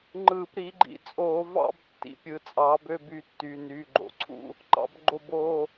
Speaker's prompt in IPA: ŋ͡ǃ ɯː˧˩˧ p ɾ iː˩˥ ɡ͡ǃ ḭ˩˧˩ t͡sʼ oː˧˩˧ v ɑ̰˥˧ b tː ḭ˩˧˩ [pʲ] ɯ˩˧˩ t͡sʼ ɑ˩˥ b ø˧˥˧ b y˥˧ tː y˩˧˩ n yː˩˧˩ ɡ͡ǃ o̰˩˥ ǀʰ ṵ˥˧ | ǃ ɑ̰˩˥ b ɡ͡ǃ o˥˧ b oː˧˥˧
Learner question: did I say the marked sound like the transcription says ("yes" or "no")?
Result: yes